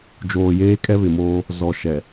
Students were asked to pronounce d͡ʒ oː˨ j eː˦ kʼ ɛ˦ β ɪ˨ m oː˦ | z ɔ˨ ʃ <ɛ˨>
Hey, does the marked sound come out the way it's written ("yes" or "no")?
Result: yes